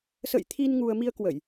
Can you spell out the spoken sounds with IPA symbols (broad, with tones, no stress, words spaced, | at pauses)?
sə̰˧˨jt̪ʰi˧n ŋu˧ə̯ mi˧ə̯kwə˧˩˨j